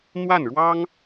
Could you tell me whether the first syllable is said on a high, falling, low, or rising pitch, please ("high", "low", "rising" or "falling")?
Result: falling